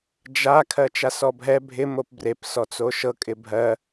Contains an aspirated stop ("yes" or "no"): yes